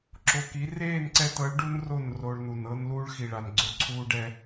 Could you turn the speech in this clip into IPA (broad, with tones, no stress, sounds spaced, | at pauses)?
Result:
ǁ o˨ k i˨˦ r eː˦˨ n ǀ ɛ˧ t ɤ˨˦ ɭ ɖ u˦ n r o˦˨ n r o˧ ɭ n u˨ n ɤ˧ n l uː˦ ɭ x i˨ ɭ a˨ n ɡ͡ǀ o˧ ǀʰ uː˦ ɖ ɛ˦